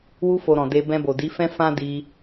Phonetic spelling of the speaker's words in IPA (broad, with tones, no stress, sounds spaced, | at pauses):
w u˧ f o˨ ɾ ɔ̃˨ d e˧ b ɛ̃˧ b o˨ d i˨˦ f ɛ̃˦ f ã˦ d i˧